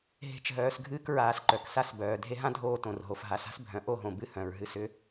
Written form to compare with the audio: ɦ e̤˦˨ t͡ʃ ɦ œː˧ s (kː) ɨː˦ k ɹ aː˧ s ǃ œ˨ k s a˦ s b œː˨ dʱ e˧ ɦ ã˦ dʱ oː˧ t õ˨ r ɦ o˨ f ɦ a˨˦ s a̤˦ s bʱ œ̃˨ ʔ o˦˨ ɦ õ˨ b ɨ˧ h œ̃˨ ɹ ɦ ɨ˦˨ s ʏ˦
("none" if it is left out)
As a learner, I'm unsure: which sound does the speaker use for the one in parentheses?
ɡʱ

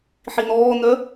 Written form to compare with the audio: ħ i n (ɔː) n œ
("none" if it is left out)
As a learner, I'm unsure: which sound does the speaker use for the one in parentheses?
ɔː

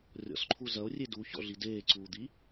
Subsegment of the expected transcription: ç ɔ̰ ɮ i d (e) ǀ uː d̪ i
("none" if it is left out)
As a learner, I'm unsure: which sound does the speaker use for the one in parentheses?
eː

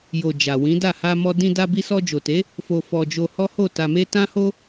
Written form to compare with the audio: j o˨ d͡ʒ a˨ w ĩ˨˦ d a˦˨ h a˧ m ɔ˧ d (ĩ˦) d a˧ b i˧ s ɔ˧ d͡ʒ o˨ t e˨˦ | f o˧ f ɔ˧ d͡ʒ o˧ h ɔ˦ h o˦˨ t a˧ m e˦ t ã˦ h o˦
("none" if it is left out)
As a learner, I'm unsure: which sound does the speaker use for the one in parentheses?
ĩ˧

